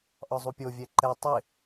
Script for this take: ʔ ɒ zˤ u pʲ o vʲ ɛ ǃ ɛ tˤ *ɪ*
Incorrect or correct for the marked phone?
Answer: correct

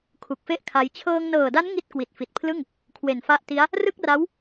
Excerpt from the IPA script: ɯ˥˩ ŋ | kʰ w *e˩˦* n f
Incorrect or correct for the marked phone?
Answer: incorrect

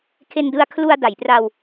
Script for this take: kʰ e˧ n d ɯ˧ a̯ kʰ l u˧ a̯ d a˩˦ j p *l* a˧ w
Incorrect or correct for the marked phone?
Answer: incorrect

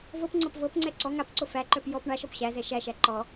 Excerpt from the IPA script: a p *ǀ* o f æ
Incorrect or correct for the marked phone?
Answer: correct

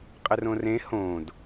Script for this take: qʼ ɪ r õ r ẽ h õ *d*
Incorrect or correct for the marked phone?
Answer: correct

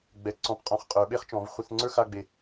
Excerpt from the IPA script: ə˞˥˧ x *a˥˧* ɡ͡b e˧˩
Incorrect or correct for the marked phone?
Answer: correct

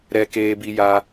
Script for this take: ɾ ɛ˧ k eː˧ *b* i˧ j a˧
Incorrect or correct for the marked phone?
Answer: correct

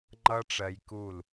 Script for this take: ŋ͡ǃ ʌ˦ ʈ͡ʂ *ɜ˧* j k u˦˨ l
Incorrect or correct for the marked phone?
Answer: correct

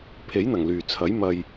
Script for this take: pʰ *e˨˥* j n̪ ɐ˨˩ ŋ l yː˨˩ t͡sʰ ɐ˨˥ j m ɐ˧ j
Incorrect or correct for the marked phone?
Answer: correct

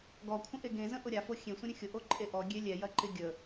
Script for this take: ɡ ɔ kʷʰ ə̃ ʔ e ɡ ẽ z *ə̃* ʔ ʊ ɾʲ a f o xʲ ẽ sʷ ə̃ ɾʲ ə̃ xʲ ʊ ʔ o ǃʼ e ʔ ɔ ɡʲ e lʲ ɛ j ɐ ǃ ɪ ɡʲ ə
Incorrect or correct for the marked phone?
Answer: correct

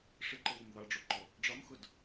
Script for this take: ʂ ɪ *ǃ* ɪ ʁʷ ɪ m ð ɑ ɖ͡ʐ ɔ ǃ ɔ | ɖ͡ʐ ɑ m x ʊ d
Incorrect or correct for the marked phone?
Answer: correct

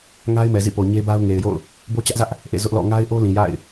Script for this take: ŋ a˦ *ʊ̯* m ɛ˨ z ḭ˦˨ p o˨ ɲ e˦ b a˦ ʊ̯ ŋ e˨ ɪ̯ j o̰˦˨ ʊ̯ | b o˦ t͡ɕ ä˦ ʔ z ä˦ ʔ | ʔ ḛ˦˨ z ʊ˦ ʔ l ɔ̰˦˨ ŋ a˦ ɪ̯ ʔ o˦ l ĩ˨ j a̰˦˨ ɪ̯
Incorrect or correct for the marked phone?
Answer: incorrect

